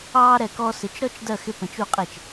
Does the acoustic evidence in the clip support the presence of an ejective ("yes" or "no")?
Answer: yes